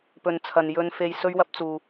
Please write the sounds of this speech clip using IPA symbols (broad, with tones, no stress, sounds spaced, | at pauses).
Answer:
p ɵ˨ n t͡sʰ ɐ˨ n j ɵ˧ n f e˧ j s ɵ˥ ɥ w ɐ˥ p̚ t͡s uː˨